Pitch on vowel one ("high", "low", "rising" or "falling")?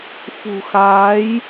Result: low